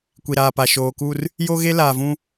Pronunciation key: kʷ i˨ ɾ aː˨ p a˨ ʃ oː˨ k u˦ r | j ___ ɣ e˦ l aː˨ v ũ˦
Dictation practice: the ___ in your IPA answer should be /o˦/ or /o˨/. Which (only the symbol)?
o˦